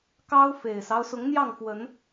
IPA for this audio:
k ɑ˦ ʊ̯ f e˨˩ ɪ̯ s ɑ˦ ʊ̯ s ʊ˨˦ ŋ n̪ j ɑ˥˨ ŋ f w ə˨˦ n

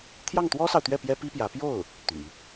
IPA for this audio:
t̪ʰ j ɑ˥˩ ŋ t̪ w ɔ˥ s ɑ˨ ʊ̯ t̪ ɥ ɛ˥˩ p j ɛ˥ p i˥ p j ä˧˥ p j o˥˩ ʊ̯ | t̪ y̰˨˩˦

